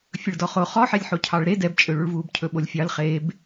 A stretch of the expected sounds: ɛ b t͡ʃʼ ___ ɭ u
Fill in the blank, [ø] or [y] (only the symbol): ø